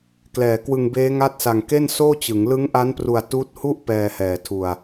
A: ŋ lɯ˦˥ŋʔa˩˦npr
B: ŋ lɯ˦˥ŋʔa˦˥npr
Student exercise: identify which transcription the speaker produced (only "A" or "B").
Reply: B